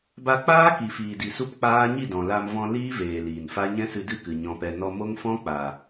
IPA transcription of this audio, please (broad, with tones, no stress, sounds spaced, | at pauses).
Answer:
b a˧ k͡p aː˦ k i˨ f iː˨ d i˨ s u˦ p k͡p aː˦ ɲ i˦˨ d ɔ̃˨ l a˧ m v ɔ̃˧ l iː˦ v eː˨ l iː˨ n f a˦ ɲ ɛ̃˦ s ɨ˧ d ɨ˦˨ k ɨ˨ ɲ ɔ̃˧ p ɛ˧ n ɔ˧ m o˦ ŋ f ɔ̃˦ k͡p a˨